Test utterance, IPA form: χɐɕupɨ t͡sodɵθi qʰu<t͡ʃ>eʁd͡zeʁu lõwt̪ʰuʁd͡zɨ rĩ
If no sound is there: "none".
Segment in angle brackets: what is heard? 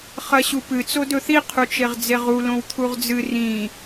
t͡ʃ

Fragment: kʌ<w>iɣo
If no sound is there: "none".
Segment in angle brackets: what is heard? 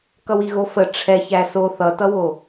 w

